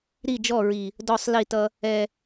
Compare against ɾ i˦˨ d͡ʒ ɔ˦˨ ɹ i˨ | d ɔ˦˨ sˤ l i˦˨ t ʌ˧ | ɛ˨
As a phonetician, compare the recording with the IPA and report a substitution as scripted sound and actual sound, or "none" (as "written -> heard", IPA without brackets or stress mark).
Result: none